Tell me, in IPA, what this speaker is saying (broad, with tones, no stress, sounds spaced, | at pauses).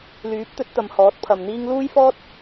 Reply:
l yː˨˥ p̚ t̪ ɵ˨˥ t̚ t̪ ɐ˨ m h ɔː˨˥ t̚ pʰ ɐ˨ m n̪ iː˥ ŋ l uː˥ j f ɔː˥ t̚